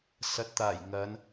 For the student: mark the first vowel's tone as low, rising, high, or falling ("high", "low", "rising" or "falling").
low